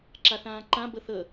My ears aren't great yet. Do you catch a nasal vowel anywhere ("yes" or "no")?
yes